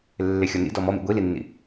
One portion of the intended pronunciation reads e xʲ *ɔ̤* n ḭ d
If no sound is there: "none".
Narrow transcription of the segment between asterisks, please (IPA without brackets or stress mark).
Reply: ɔ